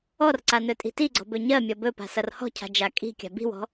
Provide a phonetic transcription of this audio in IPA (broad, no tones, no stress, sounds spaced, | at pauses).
ɔ r ǀ a n ɵ tʼ i̤ t i ɡ͡ǀ ɔ̤ b ɵ ɲ ɜ mʲ ɔ b ɵ p a̤ s ʌ r h ɔ̤ cʰ a̤ d͡ʒ a kʼ i̤ kʲ a̤ b i̤ w ɔ̤